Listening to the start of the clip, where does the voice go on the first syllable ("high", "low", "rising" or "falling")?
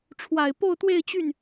low